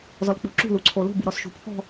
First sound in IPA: z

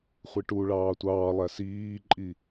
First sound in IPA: χʷ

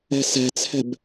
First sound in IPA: ɛ̤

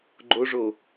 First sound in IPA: ɡ͡ǃ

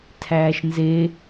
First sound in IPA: tʰ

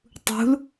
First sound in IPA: tˤ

